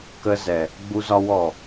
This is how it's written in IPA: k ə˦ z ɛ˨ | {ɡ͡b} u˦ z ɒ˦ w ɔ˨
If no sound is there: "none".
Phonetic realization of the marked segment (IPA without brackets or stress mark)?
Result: ɡ͡b